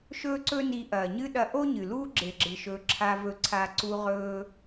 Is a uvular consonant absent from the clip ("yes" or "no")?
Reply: no